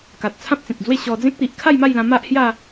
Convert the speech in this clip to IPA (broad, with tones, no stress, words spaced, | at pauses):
ka˨t̚ t͡sʰã˦p̚t͡sẽ˨k̚d͡zwe˥˧ ɕɔ˧d͡zẽ˦k̚t̪i˨ʔ kʰa˥˧jma˥˧jlã˧ ma˦ʔhja˥˧